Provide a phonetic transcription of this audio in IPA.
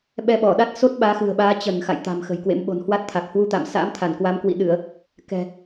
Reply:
ɓ ɛ˧ ɓ ɔ˧˩ ɗ a˦˥ t̚ s o˦˥ t̚ ɓ aː˨˦ x ɨ̤˨˩ ə̯ ɓ aː˨˦ t͡ɕ ə˧˩ n x a̰˧˨ j t̪ a̤˨˩ m x ə̤˨˩ j k w ḛ˧˥ m ɓ o̤˨˩ n h w a˦˥ t̚ t̪ʰ a˨˩ k̚ h w u˧ t̪ a̰˧˨ m s a̰ː˧˥ m t̪ʰ a˧˩ n k w a˨˦ m k w ḭ˧˨ ɗ ɨ˧˩˨ ə̯ | k ɛ̤˨˩

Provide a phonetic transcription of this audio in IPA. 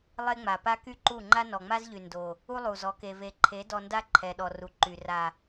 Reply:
lˠ e˦ ŋ͡m a˨ p a˦ k y˦ ǃ u˦˨ ŋ͡ǃ a˦ n ɔ˨ ŋ͡m a˦ z ʎ y˨ n d o˨ | u˦ lˠ u˨ z ɔ˨˦ k e˨ v e˨ ǃʰ e˨˦ d ɔ˧ n d a˦ ǃʰ ɛ˨ ɗ ɔ˨ r u˨ ǃ y˨ r a˨

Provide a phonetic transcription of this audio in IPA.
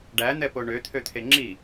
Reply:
ɖ æ n̪ ɛ p o ɳ ø t̪ʰ ø t̪ʰ e ŋ͡ǁ i

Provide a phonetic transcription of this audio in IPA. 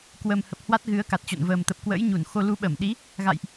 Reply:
k w ə˨˩ m h ə˨˩ p̚ h w a˦˥ t̚ ɣ ɨ˨˦ ə̯ k a˨˩ t̚ t͡ɕ o̰˧˨ n v əː˨˩ m t̪ ə˨˩ p̚ k w ə̰ː˧˥ j ɲ u˧˩ n x o˧ l u˨˦ ɓ ə˧˩ m ɗ i˨˦ | ɣ a̰˧˨ j ʔ

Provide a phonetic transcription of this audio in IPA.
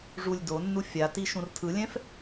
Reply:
ʐ u lʲ d o nː u fʲ a t i ʃ ũ r tʰ ɯ lʲ ɛ̃ f

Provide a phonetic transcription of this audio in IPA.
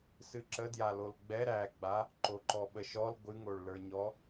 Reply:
s ɨ ǁ ə d j a l o l ɡ͡b ɛ ɾ æ ɡ͡b a | ǃ o ǃ ɔ ɓ ə ʃ ɔ l ɡʷ ɨ ŋ o ɭ l ə˞ ɲ ɔ

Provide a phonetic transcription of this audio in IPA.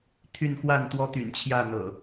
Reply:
t̪ʰ y˥˨ n x w a˥˨ n t̪ w ɔ˦ t̪ y̰˨˩ n t͡ɕʰ j ä˥˨ n̪ ɤ̰˨˩

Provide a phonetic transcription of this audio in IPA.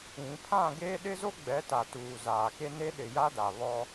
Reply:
ĩ˨˦ pʰ ã˦˨ ɡ e˦ ɗ ɪ˦ z o˦ ɡ͡b ɛ˨˦ t a˨ t uː˨ z aː˨ k e˦ n e˦ ɗ ɪ˨ j a˦ d a˨ β ɔ˦

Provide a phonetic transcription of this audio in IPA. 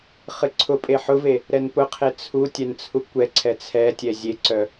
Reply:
χ ɨ ǀʰ ʊ pʼ e ħ ʊ v e | ɾ ɛ n p ʊ qʰ e t͡sʰ u tʲ ɛ n t͡sʰ u kʷ ɛ ǀʰ ɛ t͡sʰ ɛ tʲ ɛ zʲ e ǀ œ

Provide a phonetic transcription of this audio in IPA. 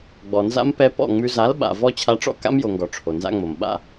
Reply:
ɡ͡b ɔ˨ n z a̰˦ m p ɛ˧ p ɔ̰˦˨ ŋ͡m ʉ˧ z a˨˦ l ɓ a̰˨ v ɔ˦ t͡ɕʰ a˧ ʈ͡ʂ ɔ̰˦ k a̰˦ m j o˨ ŋ ɡ ɔ˨ ʈ͡ʂʰ o˨ n z a̰˦ ŋ͡m o˨ m ɓ a̰˧

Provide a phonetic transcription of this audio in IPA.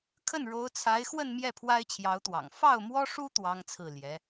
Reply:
kʰ ə˥˩ n ɻ o˧˥ ʊ̯ t͡sʰ a˧˥ ɪ̯ x w ə˥˧ n m j ɛ˥˩ pʰ w a˥ ɪ̯ t͡ɕʰ j ɑ˧˥ ʊ̯ t̪ w ɑ̰˨˩ ŋ f ɑ˥˩ ʊ̯ m w ɔ˥ ʂ u˥ t̪ w ɑ˥ ŋ t͡sʰ ɹ̩˥˩ l j ɛ˧˥

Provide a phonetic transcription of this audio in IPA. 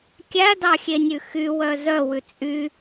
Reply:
kʲ æ d ɑ xʲ e nʲ ʉ x y w œ z œ w ʉ t͡sʼ y

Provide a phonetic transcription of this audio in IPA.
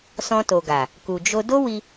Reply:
s ɔ̃˧ t o˨ ɡ a˨ | k u˨ d͡ʒ o˧ d o˦ w i˧

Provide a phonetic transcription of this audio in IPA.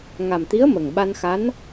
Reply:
ŋ a˨˩ m t̪ i˧˥ ə̯ m ə˨˩ ŋ ɓ a˧ n x a˧˥ n

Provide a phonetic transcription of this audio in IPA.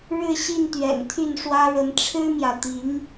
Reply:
ɻ ɻ̩˥˧ ɕ i˥˩ n t̪ ɥ ɛ̰˨˩ n t̪ʰ y˥˩ n ʂ w ä˥ ɻ ə˧˥ n ʈ͡ʂʰ ɻ̩˥ m j ä˨ t̪ i˧˥ ŋ

